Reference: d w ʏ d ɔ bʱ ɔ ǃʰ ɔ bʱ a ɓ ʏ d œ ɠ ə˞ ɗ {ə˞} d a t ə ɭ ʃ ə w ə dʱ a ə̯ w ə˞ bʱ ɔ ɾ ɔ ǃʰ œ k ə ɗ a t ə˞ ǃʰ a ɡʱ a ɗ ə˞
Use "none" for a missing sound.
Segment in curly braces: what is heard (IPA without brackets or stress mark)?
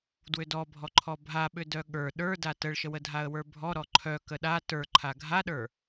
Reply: ə˞